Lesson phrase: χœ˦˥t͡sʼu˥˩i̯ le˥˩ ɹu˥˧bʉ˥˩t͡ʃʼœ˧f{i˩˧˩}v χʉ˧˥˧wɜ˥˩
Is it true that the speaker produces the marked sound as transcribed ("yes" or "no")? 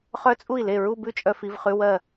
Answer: yes